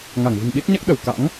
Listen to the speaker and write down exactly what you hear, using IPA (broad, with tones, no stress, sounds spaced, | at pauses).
ŋ a˧˩ ŋ v ɨ̤˨˩ ŋ ɓ i˦˥ t̚ ɲ a˦˥ k̚ ɗ ə˧˩ w k a̰˧˥ ŋ